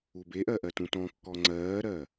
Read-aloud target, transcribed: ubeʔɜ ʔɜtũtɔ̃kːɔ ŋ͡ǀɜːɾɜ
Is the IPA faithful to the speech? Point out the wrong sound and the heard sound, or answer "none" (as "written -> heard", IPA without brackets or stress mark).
none